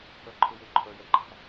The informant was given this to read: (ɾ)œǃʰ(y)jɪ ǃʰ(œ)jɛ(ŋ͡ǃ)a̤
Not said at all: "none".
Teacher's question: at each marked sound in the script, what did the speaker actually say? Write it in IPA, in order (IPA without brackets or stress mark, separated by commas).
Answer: ɾ, ɪ, œ, ǃ